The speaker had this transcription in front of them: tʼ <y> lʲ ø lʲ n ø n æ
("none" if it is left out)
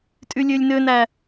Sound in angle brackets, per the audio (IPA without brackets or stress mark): y